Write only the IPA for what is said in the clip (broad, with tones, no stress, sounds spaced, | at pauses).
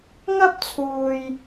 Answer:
ŋ ɐ˥ p̚ t͡sʰ uː˧ j